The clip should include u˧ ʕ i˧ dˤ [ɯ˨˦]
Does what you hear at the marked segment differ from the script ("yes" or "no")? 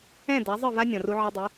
no